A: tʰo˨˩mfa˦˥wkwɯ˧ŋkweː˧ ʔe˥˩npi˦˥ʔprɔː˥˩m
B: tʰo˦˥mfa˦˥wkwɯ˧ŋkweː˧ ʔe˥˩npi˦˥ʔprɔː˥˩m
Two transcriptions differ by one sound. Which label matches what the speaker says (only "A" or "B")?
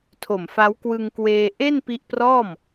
A